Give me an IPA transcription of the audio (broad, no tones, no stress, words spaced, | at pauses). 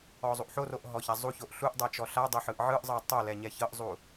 ɔzˤuʔħoroʔ ɦɔçazˤuçoʔ ɬuʔdˤɛ t͡ʃɔɬadˤe ħɯʔʕɯʔzˤɤ tˤo lɛɲɛçɤʔzˤu